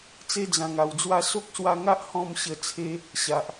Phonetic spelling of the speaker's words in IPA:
t͡s e˧ d͡z ã˨˩ ŋ a˨˩ w d͡z w a˧ s o˦ k̚ s w a˧ ŋ a˦ ʔ h ɔ̃˥˧ m ɕ ə˧ t͡sʰ e˧ | ɕ a˨ ʔ

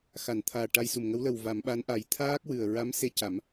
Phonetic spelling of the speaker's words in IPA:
x a˨˩˨ n t̪ʰ aː˨˩ ʈ a˧ j s u˨˩ m ŋ ə˧˥ w l ə˨˩ w v a˨˩˦ m ɓ a˧˥ n ʔ a˨˩˦ j t̪ʰ aː˦˥ k̚ w ɨ˨˩ ə̯ ɹ a˧˥ m s e˧˥ c a˨˩˦ m

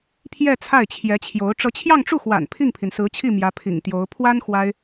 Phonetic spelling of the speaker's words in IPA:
pʰ j ɛ˥˧ t͡sʰ a˥˩ ɪ̯ t͡ɕʰ j ɛ˧˥ t͡ɕʰ j o˧˥ ʊ̯ ʈ͡ʂ ɤ˧˥ t͡ɕʰ j ɑ˥˧ ŋ ʈ͡ʂ u˥˩ x w a̰˨˩ n pʰ i˥˩ ŋ pʰ i˩ n s ɹ̩˧˥ t͡ɕʰ i˥˩ m j ä˧˥ pʰ ḭ˨˩ ŋ t̪ j o˧˥ ʊ̯ pʰ w a˥ n x w a˥ ɪ̯

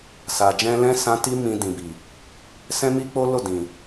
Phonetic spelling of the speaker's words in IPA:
s a˨ d͡ʒ ɛ̃˧ l ɛ̃˦ s ã˦ t i˦ m ĩ˧ d ĩ˨ b i˨ | s ɛ̃˦ m i˦ k͡p o˦ l o˦˨ d ĩ˨

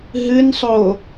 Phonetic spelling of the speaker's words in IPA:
ɦ ɨ n sˤ o

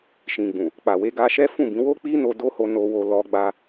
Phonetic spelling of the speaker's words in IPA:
ʃ ĩ˨ ɡ͡b ũ˨ | k͡p a˨ w e˧ ɡ a˧ ʃ ɛ˦ f ũ˦˨ b ĩ˨˦ w o˦ k͡p i˦ n o˧ d o˦ h o˧ n o˧ w o˧ l ɔ˧ ɡ͡b a˧

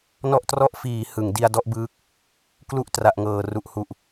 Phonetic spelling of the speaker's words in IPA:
n ɔ˥˩ ʔ t r ɔ˥˩ ʔ f iː˩˦ h ɯ˩˦ ŋ d i˧ a̯ d ɔ˦˥ ʔ b ɯː˦˥ k̚ | k l u˥˩ ʔ t r a˨˩ ʔ ŋ ɤː˩˦ r u˨˩ ʔ h u˨˩ ʔ

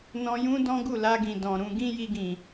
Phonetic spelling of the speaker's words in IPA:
n ɔ̃˧ j ũ˦ d ɔ̃˦ ɡ u˦˨ l a˧ ɡ ĩ˨ d ɔ̃˨ ɾ ũ˧ ɡ ĩ˦ j i˧ ɡ ĩ˨

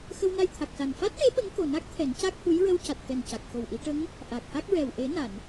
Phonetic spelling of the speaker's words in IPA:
x ə˧ w n a˧ j t̪ʰ a˨˩ k̚ s a˨˩ n f a˦˥ t̚ ʈ e˧˥ ɓ ə˧˥ ŋ k o˨˩ n a˦˥ k̚ t̪ʰ ɛ˨˩˦ n c a˦˥ k̚ h u˧˥ j ɹ ə˧ w c a˨˩ t̚ t̪ ɛ˨˩ n c a˨˩ k̚ x o˨˩ w ʔ i˨˩˦ ʈ ə˧˥ ŋ | ʔ a˨˩ k̚ h a˦˥ k̚ ɹ ɛ˨˩ w ʔ e˨˩˦ n a˨˩˨ n

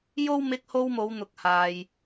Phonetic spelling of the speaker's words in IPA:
j o˥ w m ɪ˧ k̚ h o˧ w m o˨˧ w n̪ ʊ˨ k̚ h aː˧ j

